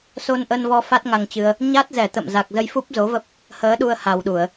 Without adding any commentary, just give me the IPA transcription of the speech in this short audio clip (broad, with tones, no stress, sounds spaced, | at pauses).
s o˧ n ʔ ə˧ n v ɔ˧ f a˦˥ t̚ ŋ a˧ ŋ t͡ɕ ɨ˧ ə̯ | ɲ a˦˥ t̚ z ɛ˧˩ t̪ ə̰˧˨ m z a˨˩ k̚ z ə˧ j f u˦˥ p̚ z o˨˦ v ə˦˥ p̚ | h əː˨˦ ɗ u˧ ə̯ h a˨˩ w ɗ u˧˩˨ ə̯